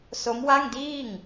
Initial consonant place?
alveolar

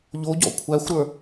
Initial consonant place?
palatal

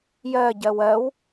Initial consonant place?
palatal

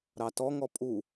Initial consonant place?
alveolar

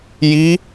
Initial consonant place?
palatal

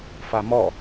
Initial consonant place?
labial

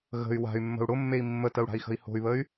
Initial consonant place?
velar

